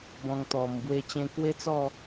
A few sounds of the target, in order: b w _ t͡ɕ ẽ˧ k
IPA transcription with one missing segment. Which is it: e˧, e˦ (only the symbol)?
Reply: e˦